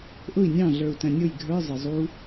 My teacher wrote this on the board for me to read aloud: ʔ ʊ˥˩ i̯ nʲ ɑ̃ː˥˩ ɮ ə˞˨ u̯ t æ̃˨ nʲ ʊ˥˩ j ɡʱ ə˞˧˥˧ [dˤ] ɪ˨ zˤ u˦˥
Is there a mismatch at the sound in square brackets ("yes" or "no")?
yes